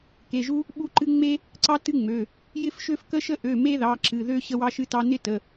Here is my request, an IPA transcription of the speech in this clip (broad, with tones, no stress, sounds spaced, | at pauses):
k e˩˧˩ ʒ u˥ | ɓ u˥ ǃ ɨ˥ ŋ͡m e˥ | ǀ ɑ˥ t ɨ˥ ŋ͡m ø˩˧˩ | j ɪ˥ f ʃ ø˥ f k ə˥ ʃ ə˥ ʔ ø˩˧˩ m e˥ ð ɑ˩˧˩ ǁ ɨ˩˧˩ ð ø˥ ɕ ə˥ w ɑ˥ ʃ ɨ˥ t ɑ˥ n ɪ˥ t ə˩˧˩